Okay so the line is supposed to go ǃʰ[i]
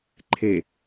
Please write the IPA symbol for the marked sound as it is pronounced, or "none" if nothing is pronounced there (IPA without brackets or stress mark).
e